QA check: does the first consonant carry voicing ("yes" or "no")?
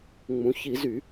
yes